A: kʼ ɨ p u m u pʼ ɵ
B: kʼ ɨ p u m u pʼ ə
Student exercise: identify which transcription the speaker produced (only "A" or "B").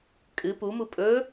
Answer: A